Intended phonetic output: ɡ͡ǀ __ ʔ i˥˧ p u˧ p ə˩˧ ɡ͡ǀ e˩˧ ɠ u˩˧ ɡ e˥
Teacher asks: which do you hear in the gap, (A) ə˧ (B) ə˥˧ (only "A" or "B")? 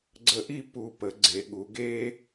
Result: A